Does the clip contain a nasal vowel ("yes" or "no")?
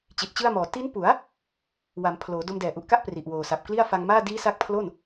no